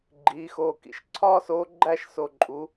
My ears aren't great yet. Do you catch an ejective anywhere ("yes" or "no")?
yes